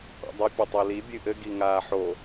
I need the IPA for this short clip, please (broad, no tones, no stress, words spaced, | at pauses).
qʷḛdˤɘ pʲɘtˤoli bʲɨʔɘ ɡiŋaːħo